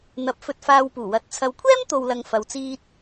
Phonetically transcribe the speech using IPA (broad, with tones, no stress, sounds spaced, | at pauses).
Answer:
n̪ ɐ˨˥ p̚ f ɵ˧ t̚ f aː˧ w p uː˨˩ w ɐ˨˥ t̚ t͡sʰ ɐ˨ w kʷʰ ɛː˥ m t̪ o˨ w l ɐ˨ ŋ f ɐ˨ w t͡s iː˧ t̚